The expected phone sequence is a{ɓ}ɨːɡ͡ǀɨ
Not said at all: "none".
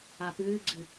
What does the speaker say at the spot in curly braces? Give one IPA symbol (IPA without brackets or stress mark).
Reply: p